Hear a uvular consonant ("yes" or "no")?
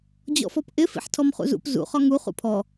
yes